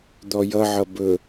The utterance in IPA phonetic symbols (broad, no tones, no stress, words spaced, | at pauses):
d̪ɔjʌʕʌ bɵ